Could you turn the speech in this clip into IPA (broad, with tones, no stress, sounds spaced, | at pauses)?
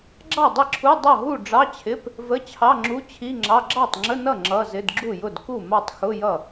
ɡ͡ǁ ɑ˥˩ dˤ ɪ˥˩ ǁʰ u˧˥˧ dˤ ʌ˥˩ ɦ u˥˩ ɖ͡ʐ ɑ˧˥˧ t͡ɕʰ ɪ˧˥˧ p | v ə˧˥˧ t͡ɕʰ ɑ˧˥˧ ŋ͡ǁ u˧˥˧ t͡ɕʰ i˧˥˧ ŋ͡ǁ ɑ˧˥˧ ɡ͡ǁ ɑ˥˩ tˤ ŋ͡ǁ ə˧˥˧ n ʌ˥˩ ŋ͡ǁ ʌ˧˥˧ z ɪ˧˥˧ d ɡ͡ǁ u˥˩ j ʊ˥˩ d k u˥˩ m ɑ˥˩ tˤ x ʊ˧˥˧ j ʌ˥˩